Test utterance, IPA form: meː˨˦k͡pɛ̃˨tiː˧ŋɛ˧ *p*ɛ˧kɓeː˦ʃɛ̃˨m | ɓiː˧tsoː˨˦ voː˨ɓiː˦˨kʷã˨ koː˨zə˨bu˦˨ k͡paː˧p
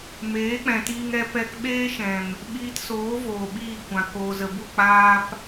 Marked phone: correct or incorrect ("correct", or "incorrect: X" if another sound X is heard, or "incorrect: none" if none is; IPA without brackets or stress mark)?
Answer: correct